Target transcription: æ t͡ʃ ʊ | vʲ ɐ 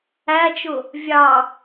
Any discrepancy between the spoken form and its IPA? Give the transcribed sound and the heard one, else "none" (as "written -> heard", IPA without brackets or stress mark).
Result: ɐ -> ɑ